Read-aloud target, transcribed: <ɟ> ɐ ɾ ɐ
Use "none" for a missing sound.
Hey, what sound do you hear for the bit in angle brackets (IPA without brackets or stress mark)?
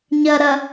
ɲ